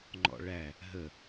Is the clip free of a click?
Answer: no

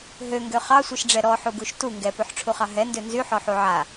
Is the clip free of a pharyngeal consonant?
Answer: no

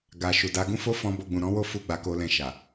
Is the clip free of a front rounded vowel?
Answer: yes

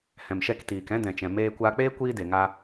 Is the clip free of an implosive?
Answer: yes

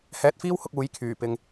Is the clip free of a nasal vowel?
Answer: yes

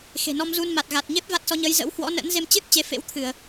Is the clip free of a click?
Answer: yes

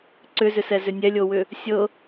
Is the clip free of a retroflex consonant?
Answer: yes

